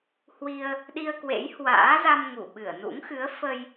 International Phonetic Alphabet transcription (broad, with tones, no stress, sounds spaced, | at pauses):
h w i˧ ə̯ | ɗ i˧ ə̯ k w ḛ˧˥ j h w a̰ː˧˥ z a˧ m ŋ u˧˩ ɓ ɨ˧˩ ə̯ n ṵ˧˥ ŋ x ɨ˨˦ ə̯ f ə˧ j